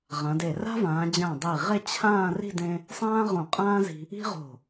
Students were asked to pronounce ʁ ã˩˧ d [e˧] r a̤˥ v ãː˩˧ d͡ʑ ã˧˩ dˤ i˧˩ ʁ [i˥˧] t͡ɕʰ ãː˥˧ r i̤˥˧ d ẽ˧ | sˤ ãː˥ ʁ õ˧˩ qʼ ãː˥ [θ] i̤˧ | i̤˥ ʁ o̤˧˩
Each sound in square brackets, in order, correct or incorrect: incorrect: e˧˩, incorrect: e˥˧, incorrect: z

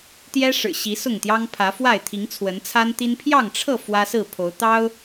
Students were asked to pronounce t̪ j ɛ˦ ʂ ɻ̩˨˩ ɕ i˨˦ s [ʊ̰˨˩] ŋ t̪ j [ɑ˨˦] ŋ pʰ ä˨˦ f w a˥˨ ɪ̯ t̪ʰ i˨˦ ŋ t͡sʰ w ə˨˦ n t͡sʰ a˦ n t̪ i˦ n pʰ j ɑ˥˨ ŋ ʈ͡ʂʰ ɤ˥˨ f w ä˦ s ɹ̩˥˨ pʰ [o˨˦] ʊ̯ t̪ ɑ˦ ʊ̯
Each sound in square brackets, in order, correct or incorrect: incorrect: ʊ˥˨, incorrect: ɑ˦, correct

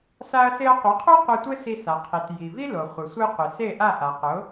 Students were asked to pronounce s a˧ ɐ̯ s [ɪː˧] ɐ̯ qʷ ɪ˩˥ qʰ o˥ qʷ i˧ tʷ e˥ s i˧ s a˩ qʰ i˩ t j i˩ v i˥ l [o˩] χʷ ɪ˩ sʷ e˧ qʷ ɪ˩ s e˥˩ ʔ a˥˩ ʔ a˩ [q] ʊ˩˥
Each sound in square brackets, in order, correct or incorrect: incorrect: ɪ˧, correct, correct

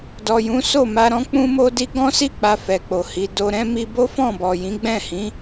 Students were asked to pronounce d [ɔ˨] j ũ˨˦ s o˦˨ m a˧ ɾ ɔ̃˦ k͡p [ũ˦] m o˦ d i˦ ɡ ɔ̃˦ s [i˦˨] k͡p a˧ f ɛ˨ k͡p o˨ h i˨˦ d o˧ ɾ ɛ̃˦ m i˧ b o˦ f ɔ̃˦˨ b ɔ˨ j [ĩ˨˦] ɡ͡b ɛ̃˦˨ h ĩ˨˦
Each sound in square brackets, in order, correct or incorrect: correct, correct, correct, correct

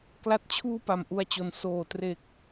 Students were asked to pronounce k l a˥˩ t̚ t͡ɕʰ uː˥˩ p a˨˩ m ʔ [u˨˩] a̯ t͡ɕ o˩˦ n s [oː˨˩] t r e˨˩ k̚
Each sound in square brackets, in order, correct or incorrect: incorrect: u˧, correct

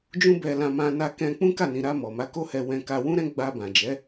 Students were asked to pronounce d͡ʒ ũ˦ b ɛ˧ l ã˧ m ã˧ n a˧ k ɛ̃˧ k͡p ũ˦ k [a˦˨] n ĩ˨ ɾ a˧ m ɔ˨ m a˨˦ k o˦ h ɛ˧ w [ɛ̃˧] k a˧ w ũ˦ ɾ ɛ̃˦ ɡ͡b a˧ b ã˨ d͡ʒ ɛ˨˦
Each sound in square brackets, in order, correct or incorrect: correct, correct

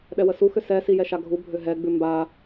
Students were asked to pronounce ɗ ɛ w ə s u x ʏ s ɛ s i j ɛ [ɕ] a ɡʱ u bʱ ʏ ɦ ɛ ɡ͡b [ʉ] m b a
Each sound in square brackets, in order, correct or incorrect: incorrect: ʃ, correct

